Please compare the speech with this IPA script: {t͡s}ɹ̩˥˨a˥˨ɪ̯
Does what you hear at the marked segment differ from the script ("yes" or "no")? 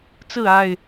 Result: no